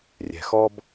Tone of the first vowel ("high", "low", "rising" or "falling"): low